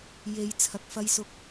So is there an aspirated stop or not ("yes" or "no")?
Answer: yes